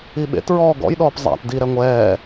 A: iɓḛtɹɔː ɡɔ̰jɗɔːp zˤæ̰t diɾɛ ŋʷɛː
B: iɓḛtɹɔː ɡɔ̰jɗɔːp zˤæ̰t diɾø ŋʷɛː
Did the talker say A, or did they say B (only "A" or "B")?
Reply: A